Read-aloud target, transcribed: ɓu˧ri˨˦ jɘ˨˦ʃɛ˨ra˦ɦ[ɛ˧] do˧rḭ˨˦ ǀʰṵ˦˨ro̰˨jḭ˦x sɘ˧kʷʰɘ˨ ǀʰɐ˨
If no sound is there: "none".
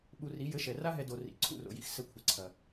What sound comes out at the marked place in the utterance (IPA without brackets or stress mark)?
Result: ɛ˧